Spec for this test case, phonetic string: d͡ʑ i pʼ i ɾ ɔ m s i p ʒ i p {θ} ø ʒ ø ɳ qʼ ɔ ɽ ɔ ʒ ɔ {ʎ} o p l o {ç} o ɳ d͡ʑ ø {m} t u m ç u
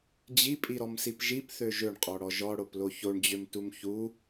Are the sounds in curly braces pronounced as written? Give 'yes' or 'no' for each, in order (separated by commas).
yes, no, yes, yes